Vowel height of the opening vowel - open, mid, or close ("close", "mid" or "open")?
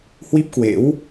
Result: close